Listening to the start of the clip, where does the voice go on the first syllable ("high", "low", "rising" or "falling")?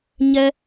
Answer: high